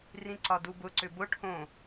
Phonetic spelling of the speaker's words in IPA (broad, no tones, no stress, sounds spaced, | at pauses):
r ĩ ǀ ɒ d u b ʊ ǀ ʏ b ʊ ʈʰ õ